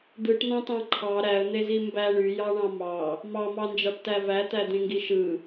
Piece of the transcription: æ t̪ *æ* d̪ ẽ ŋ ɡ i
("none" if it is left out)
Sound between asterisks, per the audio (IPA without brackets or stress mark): æ